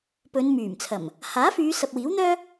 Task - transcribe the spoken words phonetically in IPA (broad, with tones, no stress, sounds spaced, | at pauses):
p ɵ˨˧ n m yː˨˩ m t͡sʰ ɐ˨˩ m | h aː˨˥ f yː˨˧ s ɐ˨ p̚ w iː˨˥ w n̪ œː˥